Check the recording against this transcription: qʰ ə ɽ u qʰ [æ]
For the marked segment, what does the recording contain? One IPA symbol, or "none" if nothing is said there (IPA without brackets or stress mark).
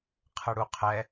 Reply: ɛ